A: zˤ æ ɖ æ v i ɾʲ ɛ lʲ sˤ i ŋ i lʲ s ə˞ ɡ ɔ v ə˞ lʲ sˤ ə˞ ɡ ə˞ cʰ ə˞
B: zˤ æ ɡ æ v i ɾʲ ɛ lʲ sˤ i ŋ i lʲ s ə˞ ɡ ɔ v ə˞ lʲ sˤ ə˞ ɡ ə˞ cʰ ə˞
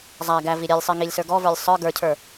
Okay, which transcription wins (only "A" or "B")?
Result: B